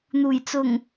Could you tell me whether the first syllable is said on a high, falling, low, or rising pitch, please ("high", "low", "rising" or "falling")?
low